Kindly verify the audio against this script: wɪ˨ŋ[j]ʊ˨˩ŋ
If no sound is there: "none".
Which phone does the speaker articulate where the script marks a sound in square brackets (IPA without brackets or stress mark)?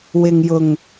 j